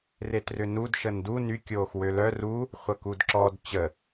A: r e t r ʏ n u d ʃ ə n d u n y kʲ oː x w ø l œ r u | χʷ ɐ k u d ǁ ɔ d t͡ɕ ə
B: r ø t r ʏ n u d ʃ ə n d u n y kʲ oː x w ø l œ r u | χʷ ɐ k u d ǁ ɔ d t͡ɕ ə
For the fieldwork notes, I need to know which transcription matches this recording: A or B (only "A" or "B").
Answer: A